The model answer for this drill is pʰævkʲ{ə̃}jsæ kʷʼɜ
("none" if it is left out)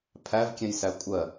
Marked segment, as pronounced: ɛ̃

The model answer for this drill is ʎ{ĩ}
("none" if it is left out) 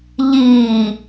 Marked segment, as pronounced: i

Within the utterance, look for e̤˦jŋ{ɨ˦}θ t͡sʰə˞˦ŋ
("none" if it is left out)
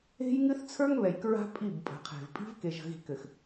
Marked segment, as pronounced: ɨ˦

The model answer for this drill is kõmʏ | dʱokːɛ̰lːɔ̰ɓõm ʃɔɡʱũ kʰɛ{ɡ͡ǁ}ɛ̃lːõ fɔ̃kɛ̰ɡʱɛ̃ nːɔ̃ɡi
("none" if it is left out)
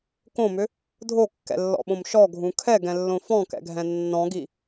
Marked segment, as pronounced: ɡ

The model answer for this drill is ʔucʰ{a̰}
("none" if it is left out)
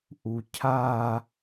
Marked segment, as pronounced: a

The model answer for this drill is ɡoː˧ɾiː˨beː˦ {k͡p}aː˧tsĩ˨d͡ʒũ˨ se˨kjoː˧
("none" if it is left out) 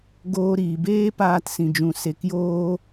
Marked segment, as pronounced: p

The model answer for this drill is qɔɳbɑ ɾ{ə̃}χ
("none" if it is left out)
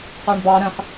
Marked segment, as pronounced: ə̃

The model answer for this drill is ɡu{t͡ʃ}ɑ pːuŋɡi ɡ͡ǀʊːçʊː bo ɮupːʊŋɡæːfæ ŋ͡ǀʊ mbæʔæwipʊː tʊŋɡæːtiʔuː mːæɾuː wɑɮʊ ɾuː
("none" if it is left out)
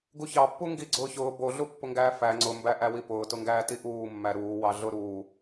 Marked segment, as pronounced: ç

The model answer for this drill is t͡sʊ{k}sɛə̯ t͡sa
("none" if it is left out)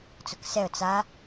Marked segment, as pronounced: k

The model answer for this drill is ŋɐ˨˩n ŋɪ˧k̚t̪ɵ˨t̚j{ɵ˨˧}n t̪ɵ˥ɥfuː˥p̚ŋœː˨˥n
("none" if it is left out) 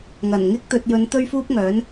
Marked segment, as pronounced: ɵ˨˧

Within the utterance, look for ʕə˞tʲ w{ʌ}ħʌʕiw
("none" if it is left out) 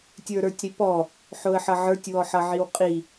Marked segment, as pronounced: ɔ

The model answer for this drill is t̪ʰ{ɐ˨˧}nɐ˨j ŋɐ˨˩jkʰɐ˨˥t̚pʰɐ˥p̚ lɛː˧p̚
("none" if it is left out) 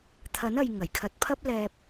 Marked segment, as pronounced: ɐ˨˥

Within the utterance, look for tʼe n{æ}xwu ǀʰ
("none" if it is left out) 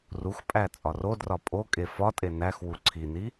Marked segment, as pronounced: æ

